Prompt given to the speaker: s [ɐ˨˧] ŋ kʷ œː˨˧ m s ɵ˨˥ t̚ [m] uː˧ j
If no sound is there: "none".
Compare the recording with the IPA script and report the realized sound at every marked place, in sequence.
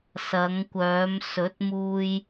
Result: ɐ˨˧, m

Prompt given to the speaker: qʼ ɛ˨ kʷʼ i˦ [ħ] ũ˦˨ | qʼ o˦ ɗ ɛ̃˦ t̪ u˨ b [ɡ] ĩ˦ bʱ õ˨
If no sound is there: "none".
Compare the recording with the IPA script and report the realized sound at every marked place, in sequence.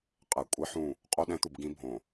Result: ħ, ɡ

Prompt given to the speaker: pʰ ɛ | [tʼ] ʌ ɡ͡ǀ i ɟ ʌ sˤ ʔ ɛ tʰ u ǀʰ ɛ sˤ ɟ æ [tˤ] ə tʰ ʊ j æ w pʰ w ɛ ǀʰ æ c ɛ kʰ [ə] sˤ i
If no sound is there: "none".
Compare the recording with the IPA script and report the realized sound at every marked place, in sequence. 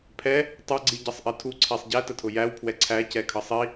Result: tˤ, t, ʌ

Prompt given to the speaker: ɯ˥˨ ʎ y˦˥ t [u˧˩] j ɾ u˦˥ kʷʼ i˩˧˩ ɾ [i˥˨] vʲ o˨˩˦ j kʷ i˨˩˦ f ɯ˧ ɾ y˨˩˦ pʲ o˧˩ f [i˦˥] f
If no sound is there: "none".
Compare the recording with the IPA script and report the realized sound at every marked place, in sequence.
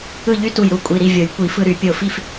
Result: u˧˩, i˥˨, i˥˨

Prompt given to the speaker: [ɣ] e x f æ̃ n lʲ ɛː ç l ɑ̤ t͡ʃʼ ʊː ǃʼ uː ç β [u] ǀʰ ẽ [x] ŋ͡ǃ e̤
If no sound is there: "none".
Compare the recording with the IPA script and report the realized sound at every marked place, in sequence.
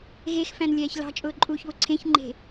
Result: ɣ, ʊ, ç

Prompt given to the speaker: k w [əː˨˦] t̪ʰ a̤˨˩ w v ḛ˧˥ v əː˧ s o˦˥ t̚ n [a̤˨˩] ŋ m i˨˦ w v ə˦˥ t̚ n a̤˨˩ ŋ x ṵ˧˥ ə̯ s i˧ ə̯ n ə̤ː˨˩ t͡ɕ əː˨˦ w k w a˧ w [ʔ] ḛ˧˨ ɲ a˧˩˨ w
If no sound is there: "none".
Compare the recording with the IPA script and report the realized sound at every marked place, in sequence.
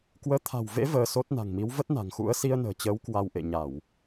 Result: əː˨˦, a̤˨˩, ʔ

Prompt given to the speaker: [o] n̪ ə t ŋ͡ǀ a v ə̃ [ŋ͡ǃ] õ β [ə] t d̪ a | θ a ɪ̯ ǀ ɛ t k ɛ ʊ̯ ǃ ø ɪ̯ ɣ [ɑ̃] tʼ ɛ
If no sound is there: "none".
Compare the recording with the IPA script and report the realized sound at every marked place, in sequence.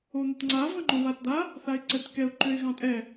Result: o, ŋ͡ǃ, a, ɑ̃

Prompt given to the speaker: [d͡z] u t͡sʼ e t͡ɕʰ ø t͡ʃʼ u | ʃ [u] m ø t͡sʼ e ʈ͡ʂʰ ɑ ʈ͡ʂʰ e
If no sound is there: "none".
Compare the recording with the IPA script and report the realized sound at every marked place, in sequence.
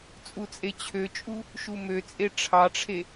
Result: t͡sʼ, u

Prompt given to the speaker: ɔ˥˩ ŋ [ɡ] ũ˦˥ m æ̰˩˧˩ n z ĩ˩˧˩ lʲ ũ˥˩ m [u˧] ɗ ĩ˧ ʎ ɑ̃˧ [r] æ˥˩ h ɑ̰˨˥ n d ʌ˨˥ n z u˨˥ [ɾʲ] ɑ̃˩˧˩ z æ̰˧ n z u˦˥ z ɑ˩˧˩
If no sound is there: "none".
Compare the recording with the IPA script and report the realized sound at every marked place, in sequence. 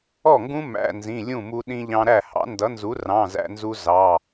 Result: ɡ, u˧, ɾ, r

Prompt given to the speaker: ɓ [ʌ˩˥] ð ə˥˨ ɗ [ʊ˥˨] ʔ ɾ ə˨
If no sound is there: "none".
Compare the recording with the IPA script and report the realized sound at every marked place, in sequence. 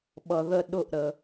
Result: ʌ˨, ʊ˥˨

